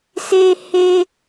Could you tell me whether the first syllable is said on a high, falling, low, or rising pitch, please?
high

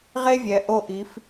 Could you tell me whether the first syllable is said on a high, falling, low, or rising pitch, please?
high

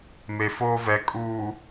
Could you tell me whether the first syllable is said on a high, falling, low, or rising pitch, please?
low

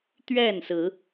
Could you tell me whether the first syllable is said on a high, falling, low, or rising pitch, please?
falling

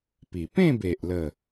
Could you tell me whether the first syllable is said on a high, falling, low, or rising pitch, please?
low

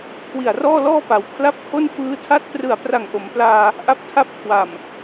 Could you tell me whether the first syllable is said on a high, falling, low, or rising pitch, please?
low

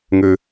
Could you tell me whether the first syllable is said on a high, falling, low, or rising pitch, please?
high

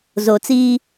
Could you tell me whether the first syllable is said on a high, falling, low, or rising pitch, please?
low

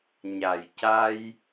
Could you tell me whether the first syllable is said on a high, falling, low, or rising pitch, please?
low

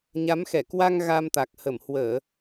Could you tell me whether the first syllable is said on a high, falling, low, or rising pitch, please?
rising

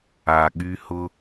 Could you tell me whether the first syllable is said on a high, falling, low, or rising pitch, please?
low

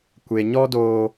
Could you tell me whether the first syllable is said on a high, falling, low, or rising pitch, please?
low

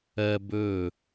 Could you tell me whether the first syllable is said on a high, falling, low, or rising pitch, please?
high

